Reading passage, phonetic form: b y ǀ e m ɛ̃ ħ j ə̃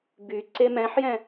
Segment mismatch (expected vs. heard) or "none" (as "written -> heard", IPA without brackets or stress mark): ə̃ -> ɛ̃